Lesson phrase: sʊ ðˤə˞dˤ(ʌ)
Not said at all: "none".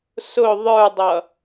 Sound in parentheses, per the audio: ʌ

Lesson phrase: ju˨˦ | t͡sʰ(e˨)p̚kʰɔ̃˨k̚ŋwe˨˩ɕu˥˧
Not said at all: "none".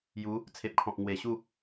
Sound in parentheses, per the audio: e˨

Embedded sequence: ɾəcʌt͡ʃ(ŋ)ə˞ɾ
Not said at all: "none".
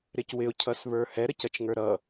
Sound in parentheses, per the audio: ŋ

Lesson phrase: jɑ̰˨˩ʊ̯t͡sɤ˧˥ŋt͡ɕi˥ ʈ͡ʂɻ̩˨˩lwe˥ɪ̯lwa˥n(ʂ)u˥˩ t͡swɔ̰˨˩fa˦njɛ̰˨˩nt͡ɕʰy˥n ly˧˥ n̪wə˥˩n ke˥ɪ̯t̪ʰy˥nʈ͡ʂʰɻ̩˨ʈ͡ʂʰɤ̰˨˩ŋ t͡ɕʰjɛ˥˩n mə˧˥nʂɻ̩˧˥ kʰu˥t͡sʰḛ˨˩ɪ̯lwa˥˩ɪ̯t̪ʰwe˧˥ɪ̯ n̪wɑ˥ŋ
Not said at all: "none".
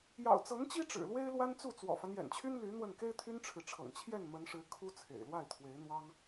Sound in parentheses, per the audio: t͡s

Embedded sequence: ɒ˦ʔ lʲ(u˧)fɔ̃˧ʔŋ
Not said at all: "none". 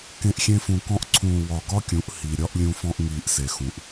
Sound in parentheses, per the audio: ũ˧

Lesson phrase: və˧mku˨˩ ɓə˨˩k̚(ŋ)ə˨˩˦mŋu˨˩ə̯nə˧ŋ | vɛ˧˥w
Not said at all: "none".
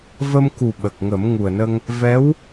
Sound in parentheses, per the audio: ŋ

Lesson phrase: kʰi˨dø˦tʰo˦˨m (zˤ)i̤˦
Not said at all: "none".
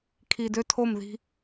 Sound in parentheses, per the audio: ð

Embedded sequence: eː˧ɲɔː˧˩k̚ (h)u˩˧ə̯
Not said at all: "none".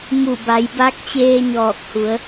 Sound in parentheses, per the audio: h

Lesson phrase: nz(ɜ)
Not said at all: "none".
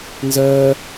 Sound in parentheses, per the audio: ɜ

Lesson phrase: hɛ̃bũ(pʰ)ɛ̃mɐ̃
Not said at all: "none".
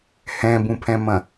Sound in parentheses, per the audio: pʰ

